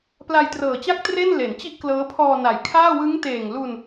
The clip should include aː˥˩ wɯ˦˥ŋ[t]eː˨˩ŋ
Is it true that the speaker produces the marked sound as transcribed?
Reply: yes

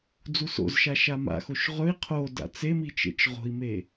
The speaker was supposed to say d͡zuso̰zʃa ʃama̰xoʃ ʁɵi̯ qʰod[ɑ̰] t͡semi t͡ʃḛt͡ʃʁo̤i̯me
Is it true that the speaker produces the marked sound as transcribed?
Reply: no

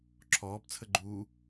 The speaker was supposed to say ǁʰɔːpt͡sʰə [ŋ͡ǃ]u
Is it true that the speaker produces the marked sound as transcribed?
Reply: no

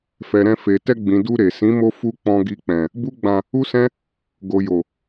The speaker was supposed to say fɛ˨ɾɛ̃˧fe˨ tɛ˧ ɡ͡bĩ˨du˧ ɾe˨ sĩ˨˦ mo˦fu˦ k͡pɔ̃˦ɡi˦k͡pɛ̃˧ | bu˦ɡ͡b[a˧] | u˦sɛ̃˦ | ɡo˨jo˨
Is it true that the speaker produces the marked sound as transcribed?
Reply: no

